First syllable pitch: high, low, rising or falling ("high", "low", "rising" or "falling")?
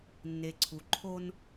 low